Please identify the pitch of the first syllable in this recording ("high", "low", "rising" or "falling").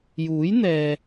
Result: rising